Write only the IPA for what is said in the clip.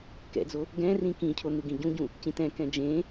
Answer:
k ɛ̰ d͡z o | ɡ ɛ̃ r ĩ k ĩ cʰ o n̪ u ɡ ĩ ɟ ũ ɟ ũ | c ĩ t ɛ̃ k ɛ̃ d͡ʒ ẽ

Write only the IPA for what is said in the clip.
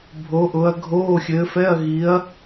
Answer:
bʱ o˨˦ ʔ ʊ˨˦ ɐ̯ ɡʱ oː˧˥˧ xʲ ɘː˨˦ f ɛ˧˥˧ ɐ̯ ɣ i˨˦ ɐ̯

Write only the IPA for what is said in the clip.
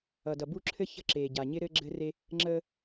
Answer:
ʌ˨ d ʌ˨ b u˦ ǁʰ ɘ˦ ç ə̤˦˨ ǁ eː˨ ɟ a˨ ɲ ɪ˦ ɾ ɘ˦ ɡ͡ǁ ɘ˦ r e˦ | ŋ͡ǁ əː˦

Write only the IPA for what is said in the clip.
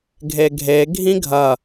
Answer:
ɡʱ e ɡʱ e ɡʱ ĩ ɡʱ ɐ

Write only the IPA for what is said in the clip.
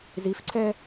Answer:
z i f ǀʰ ɛ

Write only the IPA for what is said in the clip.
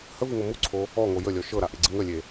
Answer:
h ə v ɨ ŋ o m u ǀʰ o | ɔ ŋ o j ə lʲ ɔ ʃ ɤ ɾ a ʔ e ɡ͡ǀ ɨ ŋ ə lʲ e

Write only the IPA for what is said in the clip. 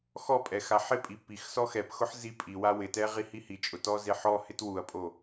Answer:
x ɔ pʼ ɛ x a ħ ɪ pʼ i p i x s ɔ x ɛ p x ʊ ħ z i pʼ i w a w ɪ t ɛ ʁ i h i h i t͡ʃʼ ʊ t ɔ z e ħ ɔ h ɪ t w u ɐ̯ pʼ o

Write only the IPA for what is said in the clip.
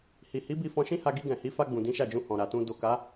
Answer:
h i˨ h i˨˦ b i˧ f ɔ̃˧ ʃ ĩ˦ h a˧ ɡ i˧ ɡ ɛ̃˨ h i˨˦ f a˧ ɡ͡b ũ˨ d ĩ˨˦ ʃ a˦˨ d͡ʒ ũ˧ h ɔ̃˨ ɾ a˨ t ũ˧ d o˨ k a˨˦

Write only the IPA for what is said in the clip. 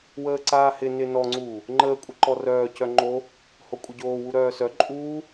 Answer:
w əː ǀ aː h ɪ n ɪ n ɔ ŋ͡ǀ uː | ŋ͡ǃ əː kʷʼ ə ǃ ɔ r œː c œ ŋ͡ǃ o | h o kʷʼ ə ɟ oː w u ɾ œː s œ ǃʼ uː

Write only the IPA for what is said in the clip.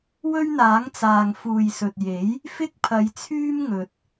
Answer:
w ɵ˥ ɥ n̪ aː˨˥ ŋ t͡s aː˨ ŋ f uː˨ j s ɵ˨ t̚ j e˨˥ j | f ɪ˥ k̚ pʰ ɐ˨˧ j t͡sʰ yː˥ m ŋ ɵ˨ t̚

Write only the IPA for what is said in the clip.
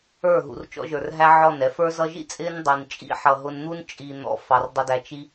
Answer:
ə˞˦˨ ɦ ṵ˨ r t͡ʃ ɔ̰˧ ʒ ə˞˨ r ɦ æ˦ ʕ ɔ˦˨ n ɛ˧ f ə˞˧ z ʌ˧ ʒ ḭ˦ t͡sʼ ɪ˦ n dˤ i˨ n t͡ʃʼ ḭ˦ ħ ʌ˨ ɦ ʊ˧ n n̪ u˦ n t͡ʃʼ i˨ n̪ ɔ̰˨ f ɑ˨ r dˤ ɪ˧ d æ˧ t͡ʃ i˦

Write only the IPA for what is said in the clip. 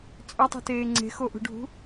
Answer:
t͡sʼ œ tˤ ṳ t eː ŋ͡ǀ e̤ x o ʔ ṳ ɖʱ ṳ

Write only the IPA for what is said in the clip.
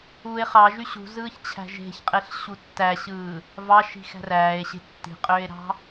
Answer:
u e̯ χ ɑ ʒ y ɕ ṳ z ɯː ç t͡ɕʰ æ̤ ʒ e̤ ç qʼ e ɬ ɕ u tː æ ɕ ɯː | v ɑ ʃ i̤ x æ̤ r æː e̯ ɕ e̤ tː i̤ qʼ øː e̯ ɾ ɑ̤

